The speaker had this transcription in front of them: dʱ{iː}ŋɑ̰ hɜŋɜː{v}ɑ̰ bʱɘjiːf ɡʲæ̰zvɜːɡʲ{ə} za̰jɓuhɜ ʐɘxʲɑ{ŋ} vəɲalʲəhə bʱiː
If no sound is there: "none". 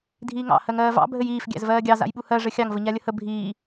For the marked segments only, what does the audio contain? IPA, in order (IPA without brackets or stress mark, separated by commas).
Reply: iː, v, ɑ, ŋ